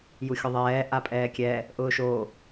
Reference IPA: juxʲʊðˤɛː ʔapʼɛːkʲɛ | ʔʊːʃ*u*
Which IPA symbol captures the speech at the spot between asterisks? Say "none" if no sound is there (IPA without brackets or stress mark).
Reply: o